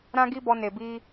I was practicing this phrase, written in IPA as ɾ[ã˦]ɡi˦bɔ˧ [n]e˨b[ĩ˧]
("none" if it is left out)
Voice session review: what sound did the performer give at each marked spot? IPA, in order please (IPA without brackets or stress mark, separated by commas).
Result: ã˦, n, i˧